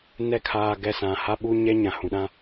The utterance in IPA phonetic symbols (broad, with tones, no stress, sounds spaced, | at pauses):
n ɛ˦˨ kʰ aː˨ ɡ ɛ˨ s ã˨ h a˦ ɓ u˦ ɲ ɛ˦ ɲ ã˨ h ũ˨ ɗ ã˦